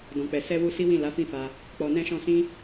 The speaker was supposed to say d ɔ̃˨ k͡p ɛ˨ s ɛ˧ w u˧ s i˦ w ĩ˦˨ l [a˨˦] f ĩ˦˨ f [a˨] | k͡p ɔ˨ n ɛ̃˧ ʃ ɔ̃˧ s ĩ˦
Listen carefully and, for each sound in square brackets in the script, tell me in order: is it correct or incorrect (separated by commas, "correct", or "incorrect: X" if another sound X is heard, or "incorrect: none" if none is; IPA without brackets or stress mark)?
correct, incorrect: a˧